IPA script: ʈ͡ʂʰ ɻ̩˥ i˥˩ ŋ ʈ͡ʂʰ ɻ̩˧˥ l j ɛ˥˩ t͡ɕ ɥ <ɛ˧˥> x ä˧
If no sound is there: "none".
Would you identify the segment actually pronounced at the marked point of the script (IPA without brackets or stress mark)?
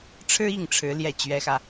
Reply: ɛ˧˥